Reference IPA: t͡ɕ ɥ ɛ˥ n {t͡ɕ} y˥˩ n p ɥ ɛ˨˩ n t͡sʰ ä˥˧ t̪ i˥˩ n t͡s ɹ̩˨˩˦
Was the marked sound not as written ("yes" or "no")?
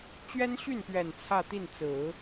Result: yes